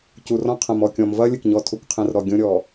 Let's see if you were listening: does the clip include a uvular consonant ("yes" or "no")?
yes